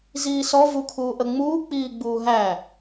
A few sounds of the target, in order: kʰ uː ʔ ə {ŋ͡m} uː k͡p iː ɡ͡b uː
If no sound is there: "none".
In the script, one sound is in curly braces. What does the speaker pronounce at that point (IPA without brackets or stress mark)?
ŋ͡m